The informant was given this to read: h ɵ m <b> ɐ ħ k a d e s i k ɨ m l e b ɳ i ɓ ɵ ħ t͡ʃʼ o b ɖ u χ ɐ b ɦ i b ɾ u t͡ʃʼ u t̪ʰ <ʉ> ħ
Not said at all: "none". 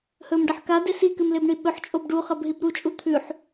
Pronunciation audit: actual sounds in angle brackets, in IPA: ɖ, ʉ

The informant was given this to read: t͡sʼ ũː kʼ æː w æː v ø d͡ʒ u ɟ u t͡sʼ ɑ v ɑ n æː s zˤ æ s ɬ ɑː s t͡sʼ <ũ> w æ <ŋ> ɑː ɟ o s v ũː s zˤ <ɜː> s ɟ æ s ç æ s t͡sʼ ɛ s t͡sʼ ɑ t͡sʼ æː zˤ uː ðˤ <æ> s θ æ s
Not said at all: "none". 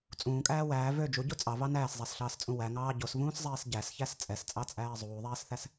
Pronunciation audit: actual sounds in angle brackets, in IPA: ũ, ŋ, ɛː, æː

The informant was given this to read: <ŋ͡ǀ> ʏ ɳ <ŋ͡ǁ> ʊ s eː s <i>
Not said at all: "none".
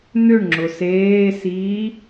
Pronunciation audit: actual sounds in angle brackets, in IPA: n̪, ŋ͡ǁ, iː

